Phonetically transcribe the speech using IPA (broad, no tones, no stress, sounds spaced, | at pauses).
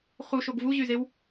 χ u ʃ o ɡ v u ʑ y z e w